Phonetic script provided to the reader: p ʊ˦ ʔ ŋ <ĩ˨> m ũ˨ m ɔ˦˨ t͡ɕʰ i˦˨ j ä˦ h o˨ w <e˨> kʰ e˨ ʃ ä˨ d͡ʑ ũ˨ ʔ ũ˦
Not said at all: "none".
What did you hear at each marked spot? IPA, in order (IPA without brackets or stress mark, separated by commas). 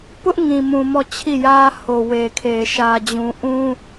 ĩ˨, e˨